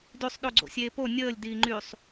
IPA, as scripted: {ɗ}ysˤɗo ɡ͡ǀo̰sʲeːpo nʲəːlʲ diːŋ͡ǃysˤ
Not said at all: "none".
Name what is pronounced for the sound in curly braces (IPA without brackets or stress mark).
d